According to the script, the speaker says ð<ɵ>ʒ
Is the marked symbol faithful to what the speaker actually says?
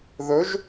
yes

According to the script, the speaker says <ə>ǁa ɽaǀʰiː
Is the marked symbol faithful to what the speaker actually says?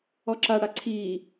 no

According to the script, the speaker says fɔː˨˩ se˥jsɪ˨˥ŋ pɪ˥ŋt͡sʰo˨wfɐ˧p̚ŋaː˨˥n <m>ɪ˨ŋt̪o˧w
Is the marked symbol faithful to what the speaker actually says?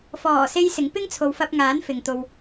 no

